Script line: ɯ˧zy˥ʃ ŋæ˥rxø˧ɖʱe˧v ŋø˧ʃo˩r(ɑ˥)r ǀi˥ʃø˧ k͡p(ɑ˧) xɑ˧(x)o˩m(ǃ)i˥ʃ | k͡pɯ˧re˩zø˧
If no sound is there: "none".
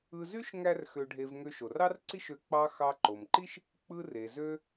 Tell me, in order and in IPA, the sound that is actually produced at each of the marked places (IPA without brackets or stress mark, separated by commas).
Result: ɑ˥, ɑ˧, ǃ, ǃ